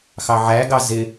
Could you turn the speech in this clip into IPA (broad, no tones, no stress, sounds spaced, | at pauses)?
x ɑ ʕ æ ɡ ɑ z ɪ